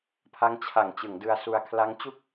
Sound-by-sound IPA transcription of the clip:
pʰ a˦˥ ŋ t͡ɕʰ a˩˦ ŋ t͡ɕ ɯ˩˦ ŋ d ɯ˧ a̯ s u˧ a̯ kʰ l a˦˥ ŋ t͡ɕ u˥˩ k̚

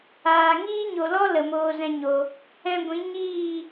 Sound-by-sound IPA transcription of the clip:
aː˨ ŋ iː˦ ɲ o˨ l ɔ˦ l ə˨ m oː˧ z ɛ̃˧ ɲ o˨ | ɛ̃˧ ɡʷ ĩ˨˦ ɲ iː˦˨

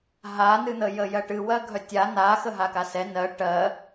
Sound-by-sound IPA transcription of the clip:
ɦ a n ɨ n̪ ə j ə j ɜ ʈ ɨ w ɜ ɡʱ œ tʲ a n̪ a x ə ɦ a k a s ɛ n ɜ ʈ ɜ

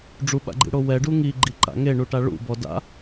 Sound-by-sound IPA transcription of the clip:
ɖ͡ʐ u ɓ a̰ ɡ͡ǃ ḭ ɽ o w ɛ ɖ u ŋ i ɡ͡ǃ i ǃ a̰ ŋ e ɳ u ʈ a ɭ ṵ b ɔ d a̰

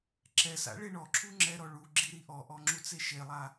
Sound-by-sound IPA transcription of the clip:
ǁ ɛ s a̰ ɭ e ɳ ɔ ǁʰ u ŋ͡ǁ ɛ ɾ ɔ ɭ u ɡ͡ǁ i ɾ i ʔ ɔ ʔ ɔ ŋ͡ǁ u t͡s e ʃ e lˠ a

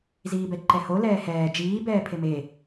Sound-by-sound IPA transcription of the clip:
z iː b ɛ ǃ ɛ h o l ɛː h ɛː d͡ʒ iː b ɛː pʰ e m eː

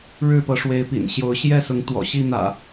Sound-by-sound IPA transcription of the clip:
ɻ ɻ̩˥˨ p ɤ˨˦ ʂ w e˨˦ ɪ̯ p ḭ˨˩ n ɕ j o˨˦ ʊ̯ ɕ j ɛ˥˨ s ʊ˨˦ ŋ t̪ w ɔ̰˨˩ ɕ i˥˨ n̪ ä̰˨˩

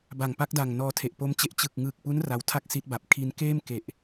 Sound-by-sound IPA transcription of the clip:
b a˨˩ ŋ p a˦˥ k̚ d a˨˩ ŋ n ɔː˧ tʰ e˨˩ ʔ p o˦˥ m t͡ɕ e˦˥ ʔ t͡ɕ ɯ˨˩ k̚ ŋ ɯː˨˩ k̚ p u˦˥ n r a˧ w tʰ a˥˩ k̚ s i˦˥ t̚ b a˨˩ p̚ kʰ i˧ n k eː˥˩ m k e˨˩ ʔ

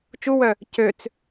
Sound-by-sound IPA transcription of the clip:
t͡ʃ u w œ | c ø t͡s

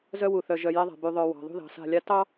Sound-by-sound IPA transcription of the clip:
z œ˦ w u˨ θ œ˨ ʒ œ˨ j ɛ˦ ðˤ a̤˨ b y˨ ðˤ œ˨ w ɑ̤˨ ðˤ ṳ˦ ð ɑ̤˨ s a̤˦˨ lʲ a˦ t ɑ˦

